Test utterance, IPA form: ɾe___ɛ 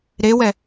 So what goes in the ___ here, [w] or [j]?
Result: w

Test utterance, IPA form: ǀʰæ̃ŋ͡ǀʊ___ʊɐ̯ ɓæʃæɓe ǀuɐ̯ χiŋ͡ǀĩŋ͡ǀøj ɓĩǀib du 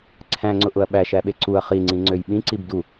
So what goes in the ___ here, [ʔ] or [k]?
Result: ʔ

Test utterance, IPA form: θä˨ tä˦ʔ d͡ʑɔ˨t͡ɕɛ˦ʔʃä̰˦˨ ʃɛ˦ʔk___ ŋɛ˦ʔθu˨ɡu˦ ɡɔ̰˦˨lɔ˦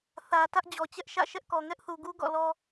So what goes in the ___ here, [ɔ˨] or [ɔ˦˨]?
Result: ɔ˨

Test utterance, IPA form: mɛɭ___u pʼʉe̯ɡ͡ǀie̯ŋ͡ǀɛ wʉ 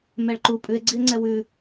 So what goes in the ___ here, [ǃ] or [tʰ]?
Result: ǃ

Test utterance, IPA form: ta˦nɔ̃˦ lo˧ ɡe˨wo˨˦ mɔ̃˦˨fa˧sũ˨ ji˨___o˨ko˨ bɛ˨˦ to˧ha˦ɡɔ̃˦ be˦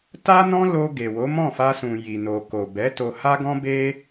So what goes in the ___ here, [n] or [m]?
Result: n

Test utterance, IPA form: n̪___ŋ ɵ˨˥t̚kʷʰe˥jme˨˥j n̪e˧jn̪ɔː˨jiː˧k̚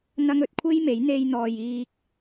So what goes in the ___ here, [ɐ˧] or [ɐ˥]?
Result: ɐ˥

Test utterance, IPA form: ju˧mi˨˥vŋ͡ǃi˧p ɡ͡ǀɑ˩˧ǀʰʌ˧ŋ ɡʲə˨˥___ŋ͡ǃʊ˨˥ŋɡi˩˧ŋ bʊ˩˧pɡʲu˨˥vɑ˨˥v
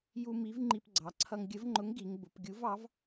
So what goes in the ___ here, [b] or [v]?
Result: v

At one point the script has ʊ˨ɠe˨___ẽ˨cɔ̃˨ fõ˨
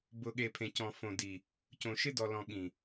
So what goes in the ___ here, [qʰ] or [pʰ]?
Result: pʰ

